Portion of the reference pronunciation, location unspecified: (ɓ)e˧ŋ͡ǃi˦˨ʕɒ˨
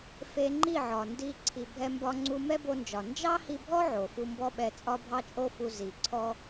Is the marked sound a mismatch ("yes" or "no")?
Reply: yes